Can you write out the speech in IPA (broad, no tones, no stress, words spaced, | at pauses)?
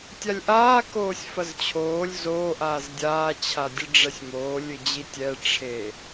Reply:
tʲalʲʔaː koːsʲfɐzt͡ɕʰoːlʲ zo ʔaːzdʲaː t͡ɕʰadʲɨɖ͡ʐɛsʲmoː lʲɨd͡ʑitʲɛ ʈ͡ʂʰe